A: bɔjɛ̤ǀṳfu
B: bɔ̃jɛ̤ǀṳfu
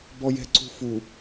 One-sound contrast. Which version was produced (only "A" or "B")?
A